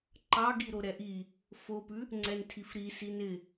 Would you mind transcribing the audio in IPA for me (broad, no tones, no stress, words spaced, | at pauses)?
ǃɑɡi ɾoɾɛʔi | fopʉ | ŋ͡ǀɛntʰifɾi sinɪ